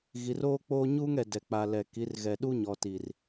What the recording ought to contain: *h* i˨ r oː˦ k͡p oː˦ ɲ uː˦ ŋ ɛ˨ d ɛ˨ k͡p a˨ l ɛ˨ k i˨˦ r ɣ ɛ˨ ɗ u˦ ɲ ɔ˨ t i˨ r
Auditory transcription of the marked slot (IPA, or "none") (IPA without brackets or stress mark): ɣ